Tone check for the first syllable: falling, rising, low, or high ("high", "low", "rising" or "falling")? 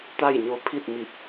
falling